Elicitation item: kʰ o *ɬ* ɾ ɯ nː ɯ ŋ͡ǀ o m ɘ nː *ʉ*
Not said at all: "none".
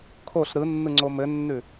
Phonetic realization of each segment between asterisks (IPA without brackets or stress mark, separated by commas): ɬ, ʉ